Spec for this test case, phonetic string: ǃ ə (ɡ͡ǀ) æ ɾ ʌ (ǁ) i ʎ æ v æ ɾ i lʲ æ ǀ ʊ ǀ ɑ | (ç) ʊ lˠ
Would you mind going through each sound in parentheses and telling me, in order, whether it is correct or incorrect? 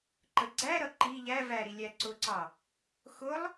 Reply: correct, incorrect: ǃ, incorrect: x

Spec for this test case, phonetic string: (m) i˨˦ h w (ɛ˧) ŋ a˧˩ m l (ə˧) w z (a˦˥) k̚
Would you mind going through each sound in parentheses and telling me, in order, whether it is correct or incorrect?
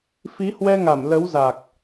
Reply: incorrect: f, correct, incorrect: ə˨˦, incorrect: a˨˩

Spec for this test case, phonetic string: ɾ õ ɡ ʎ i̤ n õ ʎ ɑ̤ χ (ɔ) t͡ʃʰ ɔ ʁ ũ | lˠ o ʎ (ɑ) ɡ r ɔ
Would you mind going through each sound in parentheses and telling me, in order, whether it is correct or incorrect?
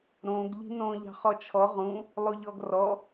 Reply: correct, incorrect: ɔ

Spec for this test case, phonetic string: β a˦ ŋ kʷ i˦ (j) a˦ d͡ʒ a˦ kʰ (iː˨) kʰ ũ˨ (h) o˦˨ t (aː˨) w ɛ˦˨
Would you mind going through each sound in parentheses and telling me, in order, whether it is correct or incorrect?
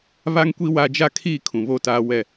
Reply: incorrect: w, incorrect: iː˦˨, incorrect: β, incorrect: aː˦

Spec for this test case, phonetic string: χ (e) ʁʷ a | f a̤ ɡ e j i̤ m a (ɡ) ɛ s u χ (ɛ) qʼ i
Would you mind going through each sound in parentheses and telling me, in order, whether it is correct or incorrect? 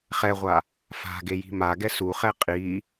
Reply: incorrect: ɛ, correct, correct

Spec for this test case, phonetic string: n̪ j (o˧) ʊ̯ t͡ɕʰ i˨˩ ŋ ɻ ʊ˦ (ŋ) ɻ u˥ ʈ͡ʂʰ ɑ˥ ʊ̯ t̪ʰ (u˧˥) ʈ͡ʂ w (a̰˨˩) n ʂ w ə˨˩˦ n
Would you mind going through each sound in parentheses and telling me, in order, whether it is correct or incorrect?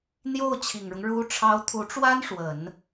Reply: incorrect: o˥˩, correct, correct, incorrect: a˥

